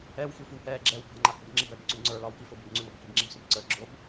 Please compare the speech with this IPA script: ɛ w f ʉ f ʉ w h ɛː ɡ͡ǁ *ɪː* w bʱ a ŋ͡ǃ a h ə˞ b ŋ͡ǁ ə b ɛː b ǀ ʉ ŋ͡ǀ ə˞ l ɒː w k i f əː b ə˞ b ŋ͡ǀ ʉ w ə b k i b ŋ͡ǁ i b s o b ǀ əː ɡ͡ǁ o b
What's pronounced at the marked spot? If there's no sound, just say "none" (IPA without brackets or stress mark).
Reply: ɛː